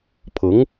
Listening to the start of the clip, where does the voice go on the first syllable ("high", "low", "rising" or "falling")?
rising